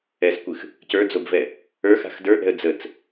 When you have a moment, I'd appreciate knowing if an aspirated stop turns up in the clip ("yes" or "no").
no